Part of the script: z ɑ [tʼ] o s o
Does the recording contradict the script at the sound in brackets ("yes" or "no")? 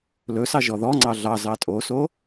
no